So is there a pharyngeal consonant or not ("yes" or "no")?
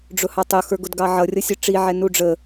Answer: yes